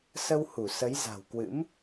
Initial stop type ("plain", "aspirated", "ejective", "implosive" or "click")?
plain